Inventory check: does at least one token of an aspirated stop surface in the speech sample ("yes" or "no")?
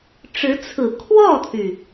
yes